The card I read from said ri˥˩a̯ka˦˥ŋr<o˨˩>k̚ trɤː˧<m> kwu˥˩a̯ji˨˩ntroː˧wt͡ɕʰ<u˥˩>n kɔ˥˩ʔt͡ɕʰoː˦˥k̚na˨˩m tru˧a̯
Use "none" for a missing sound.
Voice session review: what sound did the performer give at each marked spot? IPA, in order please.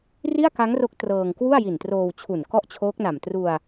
o˦˥, ŋ, u˨˩

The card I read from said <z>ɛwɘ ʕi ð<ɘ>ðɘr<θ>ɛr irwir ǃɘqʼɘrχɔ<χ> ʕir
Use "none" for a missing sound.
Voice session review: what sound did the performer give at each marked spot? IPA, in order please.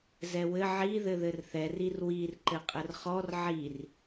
z, ɘ, θ, r

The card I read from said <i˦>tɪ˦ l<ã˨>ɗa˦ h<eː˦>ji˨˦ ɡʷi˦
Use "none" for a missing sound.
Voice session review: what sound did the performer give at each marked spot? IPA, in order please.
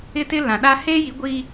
ɪ˦, ã˨, eː˦

